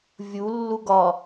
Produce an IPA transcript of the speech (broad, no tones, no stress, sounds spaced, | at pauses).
vʲ u lː u ɡ ɒ